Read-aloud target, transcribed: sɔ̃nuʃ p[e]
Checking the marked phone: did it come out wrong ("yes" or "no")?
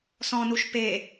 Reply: no